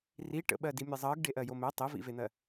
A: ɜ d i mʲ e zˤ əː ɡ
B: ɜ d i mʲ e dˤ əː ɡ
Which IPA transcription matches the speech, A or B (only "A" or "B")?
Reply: A